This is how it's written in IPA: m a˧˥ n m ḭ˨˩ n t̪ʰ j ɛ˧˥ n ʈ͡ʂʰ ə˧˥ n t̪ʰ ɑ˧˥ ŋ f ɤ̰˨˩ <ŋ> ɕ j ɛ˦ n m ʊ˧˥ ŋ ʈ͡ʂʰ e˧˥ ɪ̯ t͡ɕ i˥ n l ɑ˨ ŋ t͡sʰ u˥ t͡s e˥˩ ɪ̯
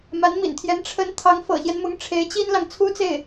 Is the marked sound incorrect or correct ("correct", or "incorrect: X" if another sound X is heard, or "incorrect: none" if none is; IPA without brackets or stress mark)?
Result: incorrect: none